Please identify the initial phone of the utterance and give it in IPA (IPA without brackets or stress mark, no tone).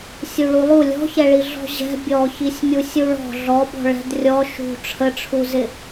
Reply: sʲ